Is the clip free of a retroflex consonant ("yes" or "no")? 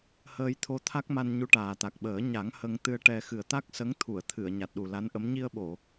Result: no